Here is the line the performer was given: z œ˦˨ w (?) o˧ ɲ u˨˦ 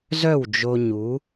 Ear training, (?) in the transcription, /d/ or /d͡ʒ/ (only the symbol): d͡ʒ